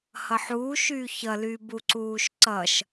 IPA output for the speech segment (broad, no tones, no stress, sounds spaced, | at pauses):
h ʌ ħ uː ʃ yː ç ʌ l y b u ǀ uː ʃ ǀ ʌ ʃ